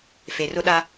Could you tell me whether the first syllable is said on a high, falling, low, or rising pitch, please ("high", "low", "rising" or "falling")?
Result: low